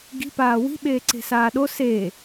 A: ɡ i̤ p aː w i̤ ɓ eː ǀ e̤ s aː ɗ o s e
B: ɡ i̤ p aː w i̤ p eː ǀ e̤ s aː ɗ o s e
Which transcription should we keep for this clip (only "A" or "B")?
A